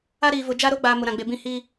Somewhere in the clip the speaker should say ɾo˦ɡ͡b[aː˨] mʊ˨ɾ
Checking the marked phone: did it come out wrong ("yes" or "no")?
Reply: no